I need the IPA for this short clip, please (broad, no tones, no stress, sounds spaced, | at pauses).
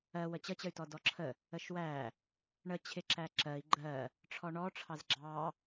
ɜ w ə t͡ɕ ə t͡ɕ ə y̯ t ɔ d ɔ ǁʰ ə | ə ʃ w æ | ɳ ə t͡ɕʰ ɪ ǁ æ ǁ ɜ i̯ ɡ͡ǃ ɜ | ʈ͡ʂʰ ɔ ɳ ɔ ʈ͡ʂʰ ɑ z ɡ͡ǁ ɑ